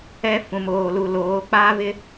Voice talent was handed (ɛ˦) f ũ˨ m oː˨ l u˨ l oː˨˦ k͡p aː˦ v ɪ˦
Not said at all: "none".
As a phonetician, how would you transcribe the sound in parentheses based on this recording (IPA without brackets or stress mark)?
ɛ˦